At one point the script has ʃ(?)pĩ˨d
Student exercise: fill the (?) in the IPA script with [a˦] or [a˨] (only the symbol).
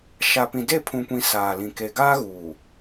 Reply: a˨